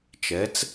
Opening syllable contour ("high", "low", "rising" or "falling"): rising